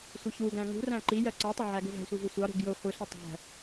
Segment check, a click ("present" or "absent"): present